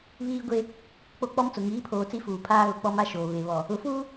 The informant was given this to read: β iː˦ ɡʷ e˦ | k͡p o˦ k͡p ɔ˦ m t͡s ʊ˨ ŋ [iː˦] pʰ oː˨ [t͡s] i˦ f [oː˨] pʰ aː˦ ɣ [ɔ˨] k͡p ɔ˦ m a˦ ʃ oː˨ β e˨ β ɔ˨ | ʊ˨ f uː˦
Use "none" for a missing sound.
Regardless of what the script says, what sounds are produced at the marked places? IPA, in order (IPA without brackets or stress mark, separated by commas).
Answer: iː˨˦, t͡s, uː˨, ʊ˨